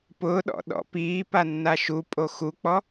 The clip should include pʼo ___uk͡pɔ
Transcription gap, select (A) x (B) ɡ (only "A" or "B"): A